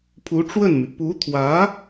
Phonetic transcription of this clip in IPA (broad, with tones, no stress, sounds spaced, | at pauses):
pʰ u˧˥ ʈ͡ʂ w ə˥˩ n m y˩ p u˧˥ t̪ʰ w ä˧˥